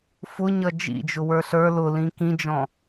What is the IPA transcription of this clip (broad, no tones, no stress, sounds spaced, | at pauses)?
f ʊ ɲ ʌ d͡ʒ ḭ d͡ʒ ʊ w ə˞ ɬ ə˞ l ʊ l ĩ k ĩ d͡ʒ ɔ̃